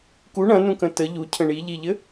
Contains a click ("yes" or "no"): no